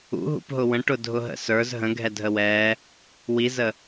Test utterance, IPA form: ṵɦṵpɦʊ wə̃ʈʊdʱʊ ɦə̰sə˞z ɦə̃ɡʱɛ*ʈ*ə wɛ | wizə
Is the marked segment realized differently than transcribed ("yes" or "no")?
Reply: yes